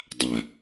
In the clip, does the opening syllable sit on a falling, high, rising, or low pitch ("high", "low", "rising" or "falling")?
low